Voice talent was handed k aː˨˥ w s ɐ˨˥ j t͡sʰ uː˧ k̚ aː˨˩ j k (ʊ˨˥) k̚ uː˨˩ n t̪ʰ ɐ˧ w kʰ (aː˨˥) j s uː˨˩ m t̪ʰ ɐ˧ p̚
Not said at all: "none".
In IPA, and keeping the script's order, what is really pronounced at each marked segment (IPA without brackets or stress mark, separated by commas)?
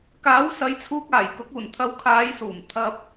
ʊ˨˥, aː˨˧